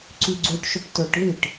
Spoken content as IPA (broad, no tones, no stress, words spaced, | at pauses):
ǀyɡ͡ǀuʈʃɵʈ tɵʈðiʈ